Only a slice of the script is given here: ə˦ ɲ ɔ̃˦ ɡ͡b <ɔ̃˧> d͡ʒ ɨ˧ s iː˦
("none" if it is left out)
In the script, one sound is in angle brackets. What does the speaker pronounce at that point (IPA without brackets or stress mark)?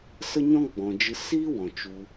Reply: ɔ̃˨